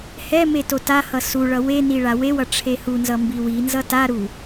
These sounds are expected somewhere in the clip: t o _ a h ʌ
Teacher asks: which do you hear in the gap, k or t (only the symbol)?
t